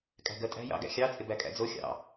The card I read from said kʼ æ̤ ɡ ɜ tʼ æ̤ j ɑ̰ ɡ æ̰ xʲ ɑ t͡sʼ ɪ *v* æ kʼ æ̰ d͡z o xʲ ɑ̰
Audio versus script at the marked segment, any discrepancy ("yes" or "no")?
yes